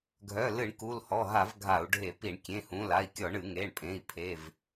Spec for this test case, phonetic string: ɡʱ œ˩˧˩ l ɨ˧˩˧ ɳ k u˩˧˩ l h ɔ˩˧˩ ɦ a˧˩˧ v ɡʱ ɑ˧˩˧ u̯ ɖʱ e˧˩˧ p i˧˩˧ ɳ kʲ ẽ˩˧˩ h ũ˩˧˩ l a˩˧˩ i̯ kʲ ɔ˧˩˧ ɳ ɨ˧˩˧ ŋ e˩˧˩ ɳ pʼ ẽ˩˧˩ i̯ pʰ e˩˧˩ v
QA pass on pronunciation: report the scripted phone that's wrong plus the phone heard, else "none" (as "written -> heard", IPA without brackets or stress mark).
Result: ɑ˧˩˧ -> a˧˩˧